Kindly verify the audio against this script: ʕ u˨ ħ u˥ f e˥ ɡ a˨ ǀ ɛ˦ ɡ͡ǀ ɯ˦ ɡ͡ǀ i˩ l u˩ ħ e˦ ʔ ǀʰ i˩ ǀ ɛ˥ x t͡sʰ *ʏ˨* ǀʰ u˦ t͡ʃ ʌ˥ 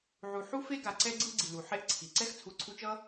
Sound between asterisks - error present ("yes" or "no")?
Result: yes